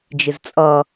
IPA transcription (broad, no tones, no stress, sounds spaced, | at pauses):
d͡ʒ ɪ z t͡sʼ ʌ